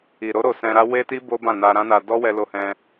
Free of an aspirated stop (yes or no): yes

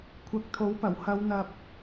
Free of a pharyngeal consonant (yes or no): yes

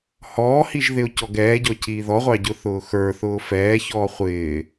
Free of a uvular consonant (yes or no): no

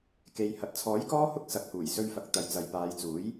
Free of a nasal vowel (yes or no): yes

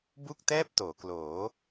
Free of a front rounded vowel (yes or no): yes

